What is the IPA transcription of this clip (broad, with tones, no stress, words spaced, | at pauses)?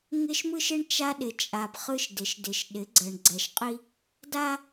ŋɪ˦ʃmɯ˦ʃɪ˦ɳ t͡ʃa˦ɗɪ˨ t͡ʃʼa˨b χɯ˦ʃdɪ˨ʃdɪ˨ʃ ɗɪ˨˦ ɡ͡ǀɜ˨ɳɡ͡ǀɛ˨ʃqʼi˦ | da˦